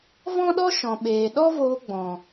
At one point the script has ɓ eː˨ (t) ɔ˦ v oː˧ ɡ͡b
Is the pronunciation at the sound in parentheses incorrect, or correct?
incorrect